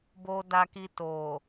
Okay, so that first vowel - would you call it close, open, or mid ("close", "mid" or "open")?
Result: mid